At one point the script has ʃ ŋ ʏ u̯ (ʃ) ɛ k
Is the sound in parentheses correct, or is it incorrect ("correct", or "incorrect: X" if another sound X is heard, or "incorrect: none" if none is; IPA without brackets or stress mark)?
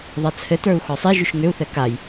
incorrect: θ